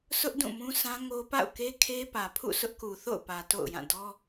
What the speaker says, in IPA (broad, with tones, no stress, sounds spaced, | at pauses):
s ʊ˦ ʔ d ũ˦˨ m ũ˦ s ã˦ ŋ o˦ p a̰˦˨ ʊ̯ k e˦ kʰ e˦ p ä˨ pʰ ṵ˦˨ sʰ ʊ˦ ʔ k u˨ θ o̰˦˨ ʊ̯ p ä˨ t o̰˦˨ ʊ̯ j ã˦˨ d ɔ˦